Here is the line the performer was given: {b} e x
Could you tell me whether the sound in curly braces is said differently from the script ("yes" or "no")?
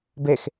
no